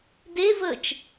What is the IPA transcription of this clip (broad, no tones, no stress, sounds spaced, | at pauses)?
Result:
d e v əː t͡ʃ